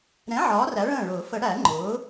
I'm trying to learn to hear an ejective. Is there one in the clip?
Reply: no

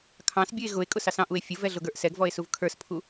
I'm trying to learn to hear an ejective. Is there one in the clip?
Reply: yes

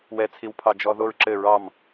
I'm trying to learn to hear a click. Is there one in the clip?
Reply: yes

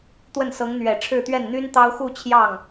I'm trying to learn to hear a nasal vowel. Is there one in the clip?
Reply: no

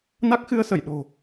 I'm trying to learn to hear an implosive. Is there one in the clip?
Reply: yes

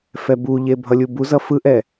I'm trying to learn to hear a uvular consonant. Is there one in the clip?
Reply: no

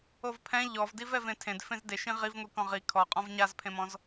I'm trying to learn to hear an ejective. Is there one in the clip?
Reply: yes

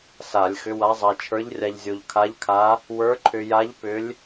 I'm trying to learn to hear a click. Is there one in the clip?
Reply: yes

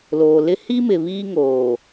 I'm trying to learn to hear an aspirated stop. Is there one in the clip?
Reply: no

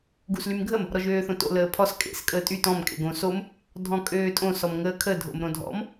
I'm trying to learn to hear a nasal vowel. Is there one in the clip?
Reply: yes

